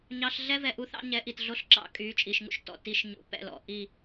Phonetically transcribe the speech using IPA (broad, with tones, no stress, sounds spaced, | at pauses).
ɲ ɑ˧ ɬ ɮ ɛ˦ v ɛ˨ ʔ u˧ θ ɑ̰˧ ɲ ɛ˨˦ ʔ i˨ t ɮ o˦ ɬ ǁ ɑ̰˦˨ kʼ yː˨˦ t͡ʃʼ i˨ ʃ ŋ ṵ˦ ʃ t ɔ̰˨ t i˨˦ ʃ ɲ ṵ˨ p ɛ̰˦˨ l ɔ̰˨ ʔ i˦˨